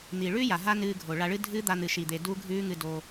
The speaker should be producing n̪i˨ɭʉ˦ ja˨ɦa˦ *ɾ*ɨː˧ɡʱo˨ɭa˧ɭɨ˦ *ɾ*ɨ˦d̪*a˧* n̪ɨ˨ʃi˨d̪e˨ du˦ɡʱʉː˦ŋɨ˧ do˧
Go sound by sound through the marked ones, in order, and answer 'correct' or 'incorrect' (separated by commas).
incorrect, incorrect, correct